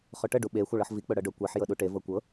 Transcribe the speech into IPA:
χ ɵ ʈ ə ɖ u ɓ e xʷ a ɭ ɤ ħ v i k͡p ɵ ɽ ɤ ɖ ɵ kʷ e ħ j ɤ ɗ u ʈ e v ɤ kʷ ɤ

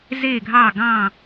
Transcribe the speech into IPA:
z e˦˨ ɡʱ ɑ˦˨ ɡ ɑ̃˦˨

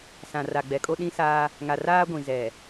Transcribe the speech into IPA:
s ã˨ r a˨ ɡ͡b ɛ˨ kʼ o˦ ɗ ĩ˦ s aː˦ | ŋ a˨ r aː˦ ɡʷ ĩ˨ z ɛ˨

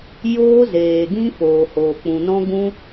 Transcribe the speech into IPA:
j oː˦ z eː˨ ɡ ĩ˦ f oː˨ h oː˨ k͡p ũ˨ n ɔ̃˦ ɡ ũ˦

